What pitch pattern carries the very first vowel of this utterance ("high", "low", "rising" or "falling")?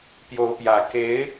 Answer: rising